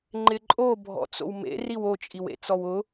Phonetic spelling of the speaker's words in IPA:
ŋ͡ǃ ɪ ǃʼ o bʱ ɔ̰ t͡s o̰ w m ḛ r i w o t͡ʃʼ i w ḛ t͡s ɔ w ʊ

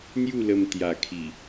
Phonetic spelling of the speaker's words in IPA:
n̪ j u˥˧ l ə˧ m t̪ j a˨˩ kʰ i˨˩

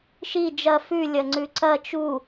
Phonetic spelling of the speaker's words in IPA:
ʃ i d͡ʒ ɐ f ʉ lʲ ɐ ŋ͡ǀ ʉ ǀ ɐ t͡ʃ u

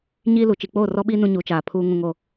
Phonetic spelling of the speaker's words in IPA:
ɲ iː˦ l u˨˦ t͡ʃ i˨ k͡p oː˦˨ r ɔ˦ ɓ i˦ n ũ˦ ɲ u˨˦ t͡ʃ aː˨ pʰ uː˦ ŋ ũ˦ ŋ o˦˨

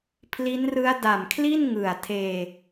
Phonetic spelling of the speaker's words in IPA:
pʰ l i˦˥ n r ɯ˦˥ a̯ d a˨˩ m kʰ l i˥˩ n ŋ ɯ˨˩ a̯ tʰ eː˧

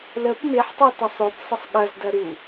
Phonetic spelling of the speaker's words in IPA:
l ə p m e ħ tˤ a t ɐ sˤ o p sˤ ɐ sˤ ɠ ɐ z d ɐ ɾ u

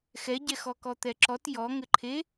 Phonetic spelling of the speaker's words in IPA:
x ɛ ɟ ɛ x ɔ k ɔ t̪ ɛ ǁ ɔ t j ɔ ŋ ɘ ǃʰ e

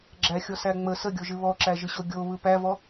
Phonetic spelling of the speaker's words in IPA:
ɡ͡ǁ æ xʲ ɔ s æ ŋ͡m ə s ə ɡʲ o ʒ ɨ β ɔ ǁ æ ʒ ɨ ɕ o ɡʲ o β ɯ p æ v ɔ

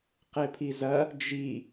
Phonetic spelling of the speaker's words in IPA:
q e pʰ i z ɐ | d͡ʒ i

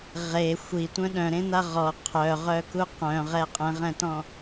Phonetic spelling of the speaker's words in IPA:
ʁ e xʷ i tʷ œ̃ ɗ œ̃ ɾ ẽ n̪ a ʁ ɔ qʰ œ ʁ œ k u q œ̃ ʁ ɛ qʼ ɛ̃ ʁ ɛ̃ t ɔ̃

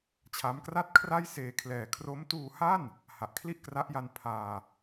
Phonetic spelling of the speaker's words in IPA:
t͡ɕʰ a˦˥ m k r a˥˩ t̚ kʰ r a˥˩ j s eː˧ kʰ l ɛː˨˩ kʰ r o˦˥ m t uː˧ h a˥˩ n | h a˨˩ ʔ kʰ l i˥˩ ʔ k r a˦˥ ʔ j a˧ n pʰ aː˧

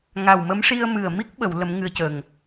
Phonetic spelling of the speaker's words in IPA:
ŋ a˨˩ w m ə˧˥ m ʂ i˧ ə̯ m ɨ˨˩ ə̯ m i˦˥ k̚ ɓ ə˨˩˨ w l ə˧˥ m ŋ ɨ˧ ə̯ c ə˨˩ ŋ

